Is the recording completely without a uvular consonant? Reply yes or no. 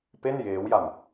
yes